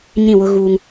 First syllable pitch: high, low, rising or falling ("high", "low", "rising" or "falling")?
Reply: falling